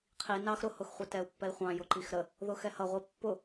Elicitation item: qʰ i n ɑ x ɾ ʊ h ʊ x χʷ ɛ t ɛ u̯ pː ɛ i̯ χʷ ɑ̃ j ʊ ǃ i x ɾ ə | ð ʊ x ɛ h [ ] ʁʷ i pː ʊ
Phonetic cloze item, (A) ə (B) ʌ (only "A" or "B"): B